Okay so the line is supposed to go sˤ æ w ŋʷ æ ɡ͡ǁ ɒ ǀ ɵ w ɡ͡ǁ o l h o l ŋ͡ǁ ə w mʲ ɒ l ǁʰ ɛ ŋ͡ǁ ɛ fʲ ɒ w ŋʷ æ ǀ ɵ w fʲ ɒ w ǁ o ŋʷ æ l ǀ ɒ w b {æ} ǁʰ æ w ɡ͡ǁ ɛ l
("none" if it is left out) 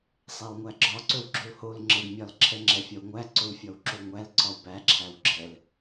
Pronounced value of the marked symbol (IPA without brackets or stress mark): æ